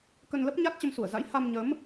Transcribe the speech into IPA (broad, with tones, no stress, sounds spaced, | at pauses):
k ə˧ n l ə˦˥ p̚ ɲ a˦˥ t̚ t͡ɕ ə˧ m s u˧˩ ə̯ z a̰˧˥ j h a˧ m ɲ ə˨˦ m